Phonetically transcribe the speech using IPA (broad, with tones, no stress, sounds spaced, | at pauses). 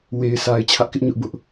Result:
w e˨ ɪ̯ s a˨ ɪ̯ t͡ɕʰ ä˦ ʔ k ɪ˦ ʔ ɲ ʊ˦ ʔ b ʊ˦ ʔ